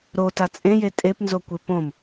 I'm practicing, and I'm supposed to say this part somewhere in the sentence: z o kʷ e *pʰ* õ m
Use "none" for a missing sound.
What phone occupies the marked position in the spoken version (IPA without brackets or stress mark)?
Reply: p